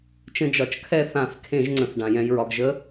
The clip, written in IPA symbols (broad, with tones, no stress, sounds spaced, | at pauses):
t͡ʃ ə̃˧ d͡ʒ ɒ˨˩ t͡ʃ kʰ ɛ˥˨ θ ã˧˩˧ θ kʰ ẽ˧˩˧ ʒ ŋ͡ǀ ə̃˨˩ θ ɖ ã˨˩ j ɛ̃˧ j ɹ ɒ˧ ɡ ʒ ə˧˥